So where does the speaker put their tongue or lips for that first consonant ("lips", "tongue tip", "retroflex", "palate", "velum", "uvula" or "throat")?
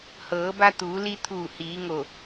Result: throat